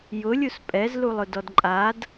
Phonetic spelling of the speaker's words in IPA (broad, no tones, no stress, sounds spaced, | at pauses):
j ʊ lʲ u s pʼ ɛ z l u lˠ ʊ d ɔ d ǃʼ a d